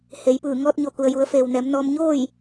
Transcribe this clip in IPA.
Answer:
h e˩˧ j p ɯː˧˩ ŋ ɔː˧ t̚ ɲ o˧˩ k u˩ ə̯ j u˩˧ ə̯ f eː˩ w n ɛː˩˧ m n ɔː˧ m ɲ oː˥˨ j

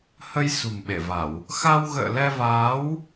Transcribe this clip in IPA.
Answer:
h ə˧ j s ṳ˨˩ m ɓ e˧˩ v a˧˩˨ w | x a˧ w ɣ ə̰ː˧˨ l ɛ˧ v aː˨˦ w

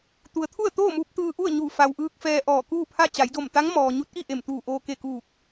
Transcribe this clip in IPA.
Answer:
t̪ u˩ ə̯ t̪ʰ u˥˨ ə̯ t̪ oː˥˨ m uː˧ p̚ t̪ ɯː˧ ʔ u˥˨ ə̯ ɲ u˧˩ f a˩ w ʔ ɯː˧ k̚ f ɛː˧ ʔ ɔː˧˩ k uː˥˨ pʰ a˥˨ t͡ɕ a˩˧ j d o˧˩ m t̪ a˧˥ ŋ m ɔː˩ ɲ u˧˥ t̚ ʔ i˥˨ ʔ e˧˩ m t̪ uː˧˩ ʔ oː˧ k e˧˩ k uː˧˩ k̚

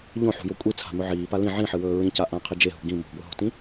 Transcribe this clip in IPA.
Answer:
ʎ õ ħ ṳ j o kʷʼ i t͡sʰ a̤ m ɵ ʕ iː p a l ĩ ʕ ĩ ħ ɨ w ɵː ɹ ĩ c a ʔ ã qʰ i d͡ʒ e ɦ ṳ ɡ ĩ m o̤ ɡʷ ɨ ɦ o̤ t ĩ

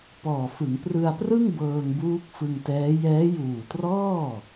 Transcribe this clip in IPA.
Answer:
p ɔː˨˩ f ɯ˩˦ ŋ p r ɯ˧ a̯ p r ɯ˥˩ ŋ b ɤː˧ ŋ b uː˦˥ k̚ f ɯ˧ ŋ t ɛː˦˥ j ɛː˦˥ j uː˨˩ t r ɔː˥˩

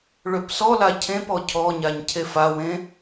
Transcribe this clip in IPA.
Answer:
ɭ ø p s ɔ l a cʰ ẽ p ɔ cʰ ɔ ɲ a ɲ cʰ e f a w ẽ

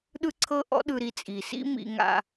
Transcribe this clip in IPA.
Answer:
ɗ ɯ˥ ǀʰ ɤ˥ ʔ ɔ̰˥ ɗ ɯ˧ ɾ i˧ t͡sʼ i˩ s ḭ˥ m ḭ˧ ŋ a̰˧

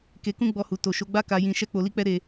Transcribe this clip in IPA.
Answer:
k e˧ k ũ˦ ɡ͡b ɔ˧ h u˨ t o˨ ʃ o˨˦ ɡ͡b a˦ k a˧ j ĩ˧ ʃ ɛ˦ k͡p o˧ l i˦ k͡p ɛ˦ ɾ e˧

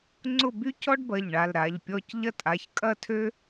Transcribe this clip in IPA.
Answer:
ŋ͡ǀ ʊ˥˨ b y˥ c ɔ˥ ɖ b ɐ˩˧˩ ʎ ɳ a˩˧˩ l ɾ a˩˧˩ ʎ pʲ ɔ˥˨ c ʎ ɐ˥ tʼ a˩˧˩ ç kʼ ɐ˥˨ tʰ ø˥

